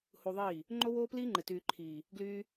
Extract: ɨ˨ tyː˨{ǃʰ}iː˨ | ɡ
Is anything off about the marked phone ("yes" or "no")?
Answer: no